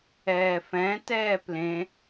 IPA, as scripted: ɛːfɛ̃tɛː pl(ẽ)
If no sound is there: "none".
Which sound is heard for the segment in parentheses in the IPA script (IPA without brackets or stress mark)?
ẽ